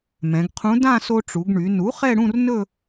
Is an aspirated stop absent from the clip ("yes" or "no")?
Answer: no